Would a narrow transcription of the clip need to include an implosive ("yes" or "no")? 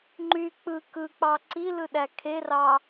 yes